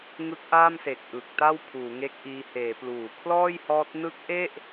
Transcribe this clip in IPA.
ŋ ɯ˦˥ k̚ ʔ aː˥˩ m s e˨˩ k̚ ʔ ɯ˨˩ k̚ t a˥˩ w pʰ uː˩˦ ŋ e˦˥ k̚ ʔ iː˧ h eː˩˦ p l uː˩˦ kʰ l ɔː˥˩ j h ɔː˦˥ t̚ n ɯ˦˥ k̚ ʔ e˥˩ ʔ

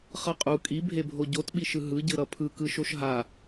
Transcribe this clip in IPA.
χ ʌ qʼ u kʼ i bʱ e bʱ o ɟ o t ɓ i ʃ ɯ ɦ ɯ ɟ ɯ ɾ ʌ pʰ ɯ k ɯ ʃ o ʃ ɦ a

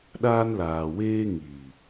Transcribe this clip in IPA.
ɗ aː˧ n l aː˨ w eː˧ ŋ iː˨

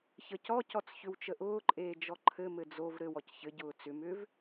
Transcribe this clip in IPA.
ç ə c ɔ c ɔ t͡s ç ʏ w t͡ʃ ə ʔ ʊː ǃʼ eː d͡ʒ ɔ ǃʰ ɘ m ɘ d͡z o v ɾ ɘ w ɔ c ç ɘ ɟ ʊː t͡s ʏ m ʏ v

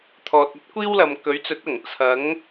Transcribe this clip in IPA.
t̪ʰ ɔː˨ t̚ ɐ˥ t̚ kʷ iː˥ w l ɐ˨ m k ɵ˨˥ ɥ t͡s ɵ˨˥ t̚ ɐ˨˩ ŋ t͡sʰ ɐ˨˥ ŋ

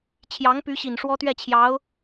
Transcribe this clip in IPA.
t͡ɕʰ j ɑ˧˥ ŋ p y˧˥ ɕ i˨˩ n ʂ w ɔ˥ t̪ ɥ ɛ˥˩ t͡ɕʰ j ɑ˧˥ ʊ̯

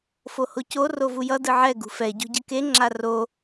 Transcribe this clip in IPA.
f o h o c o r o v u j ʌ d ɯ ʕ ɛ ɡ ṳ f ɛ ɟ o̤ ɟ ɯ k e ŋ͡ǁ a r o

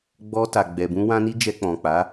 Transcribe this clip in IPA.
ɡ͡b ɔ˧ t a˨ ɡ͡b ɛ˨ b ũ˧ w ã˧ n i˧ d͡ʒ ɛ˧ k͡p ɔ̃˨ k͡p a˨˦

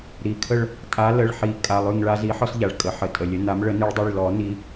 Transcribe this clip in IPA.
ɾ i˩˧˩ kʰ ə˦˨ ɭ | tʼ a˨˦ l ə˩˧˩ ɭ ħ i˨˩˦ kʼ a˩˧˩ lˠ ʉ˦˨ ŋ ɭ a˦ z i˨˦ ħ ɔ˦ s ʎ a˩ ɭ kʼ ə˩ ħ ə˩ tʼ ə˩ lʲ ə˨˦ n a˨˦ m ɭ ə˨˩˦ n i˨˦ ɭ dˤ i˩˧˩ ɭ l ɔ˨˩˦ n i˨˦

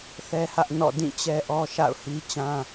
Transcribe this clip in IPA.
θ ɛ˦ h ä˦ ʔ n ɔ̰˦˨ d ĩ˦˨ t͡ɕ ɛ˦ ʔ ɔ˦ ʃ a̰˦˨ ʊ̯ h i˦ t͡ɕ ã˦

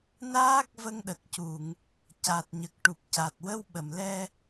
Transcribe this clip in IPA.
n aː˦˥ k̚ v ə˧ ŋ ɗ ə˨˩ k̚ c u˨˩˨ ŋ | c a˨˩ t̚ ɲ ə˨˩ k̚ ʈ u˨˩ p̚ c a˨˩ t̚ w ə˧ w ɓ ə˨˩˨ m l ɛ˧

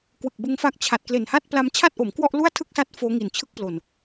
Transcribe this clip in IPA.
k w ɯ˨˩ k̚ b ɯ˧ ŋ f a˦˥ k̚ t͡ɕʰ a˨˩ t̚ k l e˨˩ n h a˥˩ t̚ p l a˧ m t͡ɕʰ a˥˩ t̚ ʔ o˩˦ m k w ɔ˥˩ ʔ l u˥˩ a̯ tʰ ɯ˥˩ k̚ s a˦˥ t̚ f oː˦˥ ŋ i˨˩ n t͡ɕʰ ɯ˥˩ k̚ p l o˨˩ n

